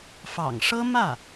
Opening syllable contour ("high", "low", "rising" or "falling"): low